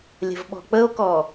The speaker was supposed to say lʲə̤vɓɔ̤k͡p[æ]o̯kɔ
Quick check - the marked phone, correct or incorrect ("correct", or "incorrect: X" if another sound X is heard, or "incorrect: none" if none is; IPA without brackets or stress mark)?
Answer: incorrect: ə